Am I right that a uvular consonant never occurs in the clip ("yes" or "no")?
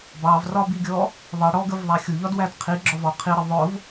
no